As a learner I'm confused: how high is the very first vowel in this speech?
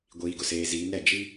high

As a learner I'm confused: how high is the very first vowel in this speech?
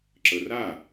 mid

